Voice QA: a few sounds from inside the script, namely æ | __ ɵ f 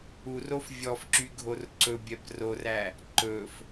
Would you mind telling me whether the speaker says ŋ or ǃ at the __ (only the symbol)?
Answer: ǃ